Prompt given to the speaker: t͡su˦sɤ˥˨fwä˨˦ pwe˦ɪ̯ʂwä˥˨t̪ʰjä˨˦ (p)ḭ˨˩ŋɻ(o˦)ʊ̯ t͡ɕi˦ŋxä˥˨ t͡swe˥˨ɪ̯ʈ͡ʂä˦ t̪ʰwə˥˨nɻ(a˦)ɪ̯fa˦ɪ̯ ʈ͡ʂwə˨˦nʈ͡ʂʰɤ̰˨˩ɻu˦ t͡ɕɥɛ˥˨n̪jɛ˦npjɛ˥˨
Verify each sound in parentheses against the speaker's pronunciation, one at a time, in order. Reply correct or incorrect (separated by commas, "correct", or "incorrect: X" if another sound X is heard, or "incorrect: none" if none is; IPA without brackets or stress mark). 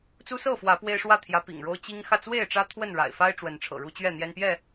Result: correct, correct, incorrect: a̰˨˩